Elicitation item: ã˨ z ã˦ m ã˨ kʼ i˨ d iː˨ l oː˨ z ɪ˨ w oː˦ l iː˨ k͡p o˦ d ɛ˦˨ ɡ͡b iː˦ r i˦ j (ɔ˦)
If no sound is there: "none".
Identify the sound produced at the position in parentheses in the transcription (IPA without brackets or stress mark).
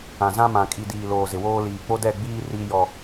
ɔ˦